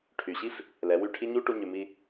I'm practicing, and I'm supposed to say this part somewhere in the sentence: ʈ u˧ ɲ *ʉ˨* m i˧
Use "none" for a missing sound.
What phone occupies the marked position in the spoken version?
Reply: ʉ˨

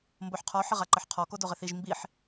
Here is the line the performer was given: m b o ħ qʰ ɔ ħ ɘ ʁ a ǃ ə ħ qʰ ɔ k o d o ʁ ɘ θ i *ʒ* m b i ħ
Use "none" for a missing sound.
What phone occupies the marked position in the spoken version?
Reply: ʒ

